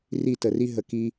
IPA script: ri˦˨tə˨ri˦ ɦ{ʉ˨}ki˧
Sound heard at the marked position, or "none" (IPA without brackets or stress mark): ə˨